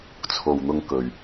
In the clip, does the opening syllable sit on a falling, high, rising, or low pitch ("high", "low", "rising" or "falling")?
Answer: low